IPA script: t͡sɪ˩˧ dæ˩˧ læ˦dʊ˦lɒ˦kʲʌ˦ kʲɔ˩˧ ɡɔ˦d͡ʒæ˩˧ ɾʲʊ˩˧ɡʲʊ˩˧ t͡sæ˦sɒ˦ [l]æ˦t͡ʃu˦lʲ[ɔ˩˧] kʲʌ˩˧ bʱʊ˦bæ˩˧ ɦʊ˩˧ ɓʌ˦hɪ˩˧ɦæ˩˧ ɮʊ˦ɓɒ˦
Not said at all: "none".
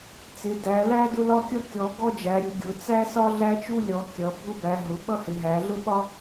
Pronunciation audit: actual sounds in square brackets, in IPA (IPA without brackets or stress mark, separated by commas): ɮ, ɔ˩˧